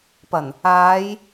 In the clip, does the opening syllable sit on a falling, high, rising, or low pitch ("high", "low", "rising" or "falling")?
low